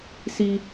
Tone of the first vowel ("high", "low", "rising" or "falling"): low